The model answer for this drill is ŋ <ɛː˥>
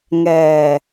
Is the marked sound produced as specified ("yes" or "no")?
no